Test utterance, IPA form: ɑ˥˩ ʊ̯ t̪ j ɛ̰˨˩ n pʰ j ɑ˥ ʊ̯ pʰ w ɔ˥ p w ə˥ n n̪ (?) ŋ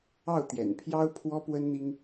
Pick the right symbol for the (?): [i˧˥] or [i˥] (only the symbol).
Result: i˥